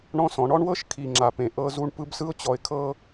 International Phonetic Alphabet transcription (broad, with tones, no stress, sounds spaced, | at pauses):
ɳ ɔ̃˦ s ɔ̃˨˦ ɳ ɔ˦ ɳ w ɤ˦ ʃ kʰ i˨ ŋ͡ǁ a˨ p ẽ˨ ʔ ɤ˦ z u˦ ɳ p ɯ˦ b s ɯ˦ ʊ̯ t͡ɕ ɔ˨ ɪ̯ kʰ ɤ˦